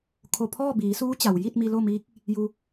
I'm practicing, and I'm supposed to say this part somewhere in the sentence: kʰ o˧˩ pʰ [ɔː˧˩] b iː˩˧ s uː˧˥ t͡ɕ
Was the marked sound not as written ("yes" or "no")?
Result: yes